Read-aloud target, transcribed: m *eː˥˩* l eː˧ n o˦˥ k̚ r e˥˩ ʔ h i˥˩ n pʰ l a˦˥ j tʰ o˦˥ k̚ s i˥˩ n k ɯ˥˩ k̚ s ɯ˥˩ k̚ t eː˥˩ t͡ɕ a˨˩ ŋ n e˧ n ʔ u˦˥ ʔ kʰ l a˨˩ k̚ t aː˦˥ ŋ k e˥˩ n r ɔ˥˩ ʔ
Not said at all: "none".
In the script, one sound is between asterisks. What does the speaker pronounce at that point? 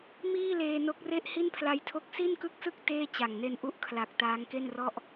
iː˥˩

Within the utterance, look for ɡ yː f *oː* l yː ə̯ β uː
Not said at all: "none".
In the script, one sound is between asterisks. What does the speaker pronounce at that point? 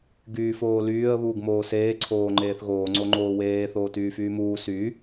oː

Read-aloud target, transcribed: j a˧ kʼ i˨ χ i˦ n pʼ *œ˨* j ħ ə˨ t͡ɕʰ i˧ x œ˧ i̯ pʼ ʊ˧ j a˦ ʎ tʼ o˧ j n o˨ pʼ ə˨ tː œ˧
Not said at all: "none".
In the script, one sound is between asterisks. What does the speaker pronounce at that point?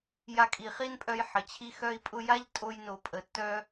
œ˧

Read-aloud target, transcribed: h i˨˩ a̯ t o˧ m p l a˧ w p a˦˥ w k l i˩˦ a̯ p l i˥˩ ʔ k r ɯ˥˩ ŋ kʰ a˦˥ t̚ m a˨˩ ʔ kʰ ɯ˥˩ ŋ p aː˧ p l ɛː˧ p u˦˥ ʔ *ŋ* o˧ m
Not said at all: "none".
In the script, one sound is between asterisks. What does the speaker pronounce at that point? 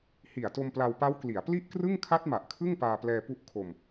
kʰ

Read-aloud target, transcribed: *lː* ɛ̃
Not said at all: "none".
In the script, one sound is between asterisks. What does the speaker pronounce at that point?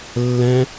lː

